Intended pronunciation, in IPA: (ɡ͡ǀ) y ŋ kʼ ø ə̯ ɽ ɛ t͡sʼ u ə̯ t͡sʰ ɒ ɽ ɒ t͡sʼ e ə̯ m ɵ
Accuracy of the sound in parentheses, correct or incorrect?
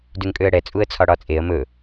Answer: incorrect